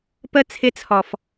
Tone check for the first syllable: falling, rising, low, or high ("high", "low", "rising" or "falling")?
high